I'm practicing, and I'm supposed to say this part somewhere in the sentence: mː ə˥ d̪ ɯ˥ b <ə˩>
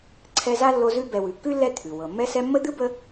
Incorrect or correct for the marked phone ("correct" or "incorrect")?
incorrect